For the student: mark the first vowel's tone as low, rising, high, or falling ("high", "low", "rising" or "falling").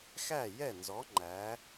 falling